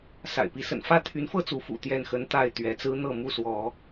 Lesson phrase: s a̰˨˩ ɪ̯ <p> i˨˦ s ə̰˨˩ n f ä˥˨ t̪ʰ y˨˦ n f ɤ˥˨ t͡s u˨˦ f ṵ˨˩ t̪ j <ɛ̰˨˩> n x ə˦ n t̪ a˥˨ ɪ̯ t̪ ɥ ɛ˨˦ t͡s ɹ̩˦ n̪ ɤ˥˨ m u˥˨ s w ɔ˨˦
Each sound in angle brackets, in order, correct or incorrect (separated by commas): correct, incorrect